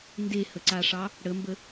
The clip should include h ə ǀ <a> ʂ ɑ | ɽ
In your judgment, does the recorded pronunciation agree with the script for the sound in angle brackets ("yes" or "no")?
yes